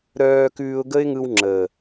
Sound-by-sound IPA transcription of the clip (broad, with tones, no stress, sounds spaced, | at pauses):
ɾ œː˧ k ʉː˧ ʊ̯ ɡ ə˦ ɪ̯ ŋ ɯ˧ w ŋ͡ǁ əː˨